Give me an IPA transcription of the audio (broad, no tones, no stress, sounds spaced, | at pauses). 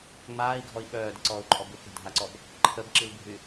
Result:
ŋ͡m aː i̯ ɡʱ ɔ i̯ ɓ œː d ə ǀ ɔː u̯ ǃʼ ɔ b u k e̤ dʱ a ǀ ɔ b | ǃʰ ə b ǁ i l bʱ y